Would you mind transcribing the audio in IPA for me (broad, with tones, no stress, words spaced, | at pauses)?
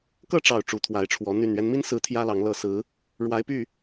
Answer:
kɤ˥˨ʈ͡ʂɑ˨˩ʊ̯ ʈ͡ʂu˨˦t̪ʰwa˨˦ɪ̯ʈ͡ʂʰwɔ˨˦ n̪y˨˩nɥɛ˦nmi˦nsɹ̩˨˦ t̪ʰjä˦lɑ˨˦ŋlɤ˥˨ sɹ̩˨˦ | ɻwa˨˦ɪ̯py˥˨